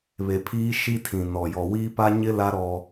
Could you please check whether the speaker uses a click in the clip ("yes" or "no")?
no